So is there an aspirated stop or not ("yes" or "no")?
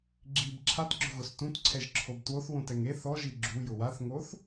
yes